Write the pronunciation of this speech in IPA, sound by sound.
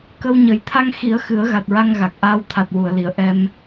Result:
k ə˧ w ɲ ə˨˩˦ j t̪ʰ a˧ ŋ x i˨˩˦ ə̯ x ɨ˨˩˦ ə̯ ɣ a˨˩ t̚ ɹ a˧ ŋ ɣ a˨˩ k̚ ʔ aː˧ w t̪ʰ a˨˩ t̚ w u˨˩˨ ə̯ l i˨˩˨ ə̯ ʔ ɛ˧ m

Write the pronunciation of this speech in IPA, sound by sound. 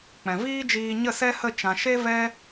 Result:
k͡p ɛ̃˨ v iː˦ d͡ʒ iː˧ ɲ ə˦˨ s ɛ˦ h ə˦˨ t͡ʃ ã˨ ʃ e˦ v ɛ˦

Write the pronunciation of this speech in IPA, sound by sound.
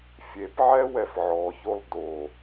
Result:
fʲ e p ʕ ɛ w ɛ f ʕ ɔ ç o lˠ d o

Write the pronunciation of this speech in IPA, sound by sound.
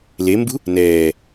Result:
l e m b ṳ | n ɛː

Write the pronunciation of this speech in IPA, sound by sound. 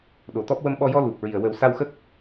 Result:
ɗ o˨˩ t̪ ɔ˦˥ p̚ w ə˧ m ɓ ɔ˧ j ɔ˧ l u˨˩ p̚ ɹ i˨˩ ə̯ w ə˨˩˦ w s a˧ w x ə˦˥ k̚

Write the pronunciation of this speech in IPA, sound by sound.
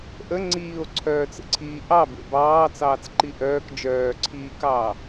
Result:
ʔ ə ŋ͡ǀ iː o̯ ǀʰ œː t͡s ə̰ ǀʰ iː ʔ ɑ b ḛ b ɑː t͡s ɑː t͡s ǃ i ʔ œː k d͡ʒ œː ǀʰ iː k ɑː

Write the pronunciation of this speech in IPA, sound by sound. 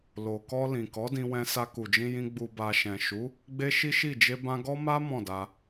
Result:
l o˨ k ɔ˧ l ĩ˨ k ɔ˨˦ d ĩ˧ w ɛ̃˧ s a˧ k u˨ d͡ʒ ĩ˧ j ĩ˧ ɡ͡b u˨ b a˨ ʃ ɛ̃˨ ʃ u˨˦ | ɡ͡b e˦ ʃ i˦ ʃ i˦˨ d͡ʒ e˧ b ã˧ ɡ ɔ˦ m a˦ m ɔ̃˦˨ d a˧

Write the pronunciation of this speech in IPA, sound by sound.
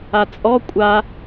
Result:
a t͡sʼ ɔ kʷʼ a

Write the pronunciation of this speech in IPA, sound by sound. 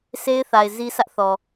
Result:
sʰ e˦ ɪ̯ θ a˨ ɪ̯ z i˦ sʰ ä˦ ʔ θ ɔ˨

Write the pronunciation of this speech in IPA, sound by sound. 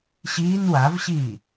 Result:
ɕ iː n w a v ɕ iː

